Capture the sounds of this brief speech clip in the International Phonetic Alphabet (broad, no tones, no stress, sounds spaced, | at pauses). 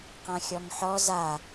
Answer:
q ã xʲ ɔ ŋ ħ ɔ z a